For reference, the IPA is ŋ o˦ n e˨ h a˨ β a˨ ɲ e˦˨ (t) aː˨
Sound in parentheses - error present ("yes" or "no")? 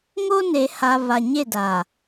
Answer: yes